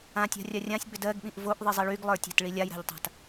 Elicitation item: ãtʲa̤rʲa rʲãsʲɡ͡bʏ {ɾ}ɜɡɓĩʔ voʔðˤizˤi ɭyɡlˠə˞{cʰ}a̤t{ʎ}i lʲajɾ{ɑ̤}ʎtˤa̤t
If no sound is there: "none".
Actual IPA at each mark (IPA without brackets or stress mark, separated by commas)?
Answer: d, tʲ, ɭ, a̤